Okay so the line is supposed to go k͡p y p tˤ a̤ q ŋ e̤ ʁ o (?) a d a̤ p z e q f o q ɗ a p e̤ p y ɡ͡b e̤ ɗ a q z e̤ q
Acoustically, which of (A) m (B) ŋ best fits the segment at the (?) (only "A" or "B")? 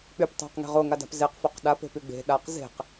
B